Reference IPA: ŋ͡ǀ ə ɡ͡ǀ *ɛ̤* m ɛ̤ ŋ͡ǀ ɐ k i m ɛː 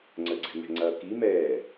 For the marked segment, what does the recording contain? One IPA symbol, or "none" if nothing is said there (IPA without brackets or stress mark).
ɛ̤